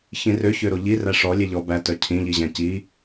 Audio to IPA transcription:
ç ĩ r ø ç ø ɾ o ʎ i r æ ʂ ɔ lʲ e ʎ ɔ b æ t œ cʰ ĩ ʎ i ʑ æ̃ c i

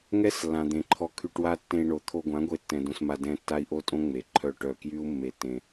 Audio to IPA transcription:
ŋ ɛ˦ s lː ã˨ d̪ ẽ˨ ǃʰ ɔ˧ kʰ y˧ ʈ w a˦ tː ẽ˧ i̯ ɳ o˨ t̪ʰ o˧ ɡʷ ã˨˦ ɡʷ e˧ tː ɛ̃˧ d õ˧ s m a˧ d ɛ̃˧ tː a˦ i̯ ʔ o˦ tʼ õ˦ ŋ͡m e˨ ǃʰ œ˦˨ ʈ œ˦˨ k j y˦ u̯ mː e˧ tː ẽ˧

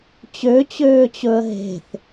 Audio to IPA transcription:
t͡ɕ ø t͡ɕ øː t͡ɕ ɵ ə̯ ɦ e̤ θ

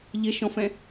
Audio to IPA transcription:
ʎ ɪ ʃ ɔ̃ f ɛ̃

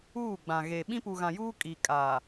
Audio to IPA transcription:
uː˦˨ ɡ͡b ã˨ ɣ e˨ ɓ ĩ˦ p u˨ ɣ ã˨ j uː˦ kʼ i˨ kʼ a˨

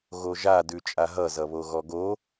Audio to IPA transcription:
ɣ o ʒ a d ʉ t͡ʃʼ a ɦ ʌ z ʌ β o ɣ ɔ ɡ o

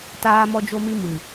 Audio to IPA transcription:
t aː˦ m ɔ˦ d͡ʒ o˦ m i˦ m ɨ˨

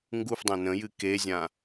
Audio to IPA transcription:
ŋ ɡ u f dˤ æ̃ n ə̃ j ɨ k e zʲ ã

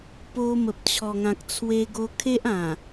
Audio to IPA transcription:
p o˧ m ə˨ p̚ t͡ɕʰ ɔ˨˩ ŋ ã˨ k̚ t͡sʰ w e˧ ɡ o˧ kʰ e˦ ʔ ã˨˩

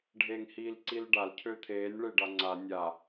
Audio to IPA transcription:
ɖʱ eː ŋ h iː l ǀ i l ɖ a l cʰ ø t̪ʰ eː nʲ ɭ e ɖ a ŋ͡ǀ a nʲ a

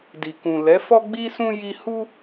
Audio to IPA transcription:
d i˨ k ũ˨ l ɛ˨˦ f ɔ˦ ɡ͡b i˦ s ũ˦ j i˧ h u˦

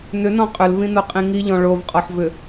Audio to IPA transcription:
n ʏ n ɔ̃ qʼ ʏ l v ĩ n o qʼ ĩ ŋ i ʎ ɔ̃ ɭ o v qʼ ɔ ħ v ʏ

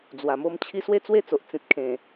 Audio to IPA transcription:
d͡z w a˨˩ m o˧ m t͡ɕʰ i˧ s w e˥˧ t͡s w e˥˧ t͡s o˨ ʔ t͡s ĩ˨ t̚ kʰ ẽ˨˩

